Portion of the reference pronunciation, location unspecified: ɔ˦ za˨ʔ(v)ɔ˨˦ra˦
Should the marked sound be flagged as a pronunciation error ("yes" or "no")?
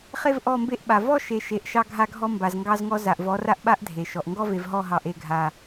no